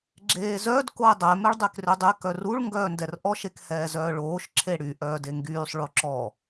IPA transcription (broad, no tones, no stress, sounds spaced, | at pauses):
ɡ͡ǁ eː z œ d k o e̯ dˤ ɛ m ɛ ɭ dˤ e k r ø dˤ e k œ r u ɭ ŋ ɡ œː n d ɛ r ʔ ɔ ʃ e k h ɛː z œː ɭ oː ʃ ǁʰ e ɽ y ʔ œː d e ŋ ɡ yː sˤ ɭ o ǁ ɔ